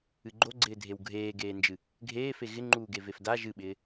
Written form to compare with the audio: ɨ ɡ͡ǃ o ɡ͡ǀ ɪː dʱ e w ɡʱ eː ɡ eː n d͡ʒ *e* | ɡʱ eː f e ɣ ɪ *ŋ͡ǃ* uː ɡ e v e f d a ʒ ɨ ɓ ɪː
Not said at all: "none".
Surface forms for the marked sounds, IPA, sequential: ɨ, ŋ͡ǃ

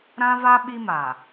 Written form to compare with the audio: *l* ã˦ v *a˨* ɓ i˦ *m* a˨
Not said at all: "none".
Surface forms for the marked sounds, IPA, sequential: ɾ, a˦, m

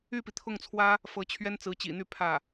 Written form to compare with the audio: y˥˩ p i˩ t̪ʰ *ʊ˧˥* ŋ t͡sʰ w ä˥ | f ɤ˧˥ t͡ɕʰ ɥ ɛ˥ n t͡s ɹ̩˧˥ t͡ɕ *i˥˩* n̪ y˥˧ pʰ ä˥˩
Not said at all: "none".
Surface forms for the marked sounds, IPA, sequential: ʊ˥˩, ḭ˨˩

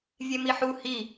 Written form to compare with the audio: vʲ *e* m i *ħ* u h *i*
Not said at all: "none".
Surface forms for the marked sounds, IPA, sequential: e, ħ, i

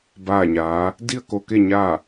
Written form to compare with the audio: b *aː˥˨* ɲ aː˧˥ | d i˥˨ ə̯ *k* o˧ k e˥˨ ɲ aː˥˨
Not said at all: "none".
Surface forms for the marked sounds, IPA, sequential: aː˥˨, k

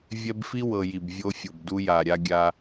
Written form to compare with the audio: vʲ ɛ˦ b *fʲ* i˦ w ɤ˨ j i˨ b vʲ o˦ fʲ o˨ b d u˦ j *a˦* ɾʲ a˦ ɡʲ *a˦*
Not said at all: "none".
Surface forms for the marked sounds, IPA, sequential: f, a˨, a˦

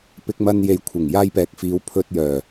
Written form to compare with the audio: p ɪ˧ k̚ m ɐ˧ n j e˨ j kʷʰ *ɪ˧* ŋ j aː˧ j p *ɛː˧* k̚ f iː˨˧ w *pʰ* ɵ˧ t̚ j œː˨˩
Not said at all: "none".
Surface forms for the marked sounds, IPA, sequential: ɪ˨˩, ɛː˨˥, pʰ

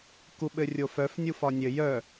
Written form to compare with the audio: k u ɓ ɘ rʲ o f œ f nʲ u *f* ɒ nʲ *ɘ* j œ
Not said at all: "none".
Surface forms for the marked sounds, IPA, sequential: f, ɘ

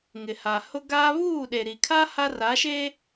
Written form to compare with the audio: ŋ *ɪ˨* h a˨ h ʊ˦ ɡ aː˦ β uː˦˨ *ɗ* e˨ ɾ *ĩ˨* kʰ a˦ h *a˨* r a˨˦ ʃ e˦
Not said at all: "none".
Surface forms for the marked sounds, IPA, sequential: ɪ˨, ɗ, i˨, a˦

